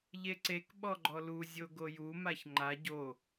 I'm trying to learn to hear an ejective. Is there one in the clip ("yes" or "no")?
no